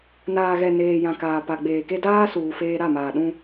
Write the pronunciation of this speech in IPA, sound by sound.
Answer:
n aː˨ ɣ ɛ˨ n eː˨ j ã˨ k aː˨ p a˨ ɡ͡b eː˨ k e˦ d aː˦ s uː˨ f eː˦ ɾ a˦˨ m aː˨ ɗ ũ˦

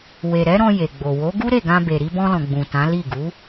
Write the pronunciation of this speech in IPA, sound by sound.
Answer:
w e˨ ɾ ɛ˨˦ ɾ ɔ̃˧ j e˨ ɡ͡b o˨ w o˨˦ ɡ u˦ ɾ e˦˨ ɡ ã˧ b e˨ ɾ i˧ b ɔ̃˧ l ɔ̃˨ ɡ͡b ũ˨ t ã˨˦ l i˦˨ ɡ u˨˦

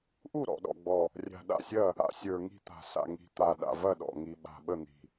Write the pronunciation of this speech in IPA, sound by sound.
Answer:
ʔ u˥˩ ɾ ɔ̰˨˩ ɗ ɔ̰˨˩ ɡ͡b ɔ˨˩ | rʲ a̤˨˩ ɗ a̰˥˩ sʲ ɐ˥˩ | a̰˨˩ sʲ ə˞˨˩ ŋ i̤˥˩ t̪ a̤˨˩ s a̰˨˩ ŋ i̤˨˩ t̪ a˨˩ ɗ a̰˨˩ v ɐ˥˩ ɗ ɔ̰˨˩ ŋ i˨˩ ɓ a̤˨˩ ɓ ə˥˩ n̪ i̤˨˩

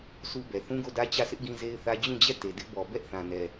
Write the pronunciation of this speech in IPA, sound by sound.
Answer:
s u˦ b ɛ˨ θ ũ˦ ɡ o˦˨ d ä˦ t͡ɕ ä˦˨ s ɪ˦ ʔ ɡ ĩ˦ z e˦ ɪ̯ θ ä˦ d͡ʑ ũ˦˨ d͡ʑ ɛ˦˨ t e˨ d ɪ˦ ʔ b ɔ˨ b ɛ˦ ʔ θ ã˨ n ɛ˨

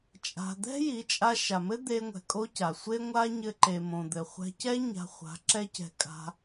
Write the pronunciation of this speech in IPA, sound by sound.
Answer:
t͡ʃʼ a̤˧ d̪ ɛ̤˦ j i˨˦ t͡ʃʼ a˧ ʃ a˨ m ɘ˦ d̪ e˧ ŋʷ ɛ̤˨ kʼ o˦ c a˨ sʷ e˦ ŋʷ a˦ ɲ ɘ˧ ǃ e˨ m õ˨ d̪ ɘ˨ χʷ ɛ̤˧ c ɛ˦ ɲ a̤˧ χʷ a̤˨˦ ǁ ɛ˦ c ɛ̤˧ kʼ a̤˧

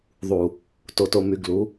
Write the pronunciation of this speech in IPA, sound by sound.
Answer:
ðˤ u˨ | t o˨ t o˨ m y˨ ɡ l u˨˦

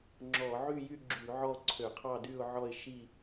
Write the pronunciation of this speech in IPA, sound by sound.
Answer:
ŋ͡ǁ ɔ˧˩˧ ʕ y˥˧ j y˥˧ ɡ͡ǁ y˧˩˧ ʕ ɔ˥˧ ǀʰ ø˧˩˧ qʰ ɑ˥˧ d y˥˧ ʊ̯ ʕ ɔ˥˧ ɪ̯ ʃ i˥˧

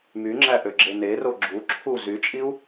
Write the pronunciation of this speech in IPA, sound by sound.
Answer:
m y ŋ͡ǁ æ ʔ ø ɡ͡ǁ e n e r o ɡ͡ǁ u ǁʰ u z y t͡ʃʼ i u̯

